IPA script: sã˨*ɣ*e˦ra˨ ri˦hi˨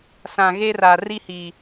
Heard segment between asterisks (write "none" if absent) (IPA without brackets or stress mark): ɣ